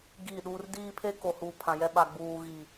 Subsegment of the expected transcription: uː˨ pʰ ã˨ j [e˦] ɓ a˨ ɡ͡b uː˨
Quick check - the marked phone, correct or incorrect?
incorrect